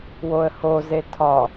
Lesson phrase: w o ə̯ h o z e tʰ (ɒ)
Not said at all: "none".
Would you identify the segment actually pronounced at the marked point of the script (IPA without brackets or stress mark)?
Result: ɒ